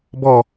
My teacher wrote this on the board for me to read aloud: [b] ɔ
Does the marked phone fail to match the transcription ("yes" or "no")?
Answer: no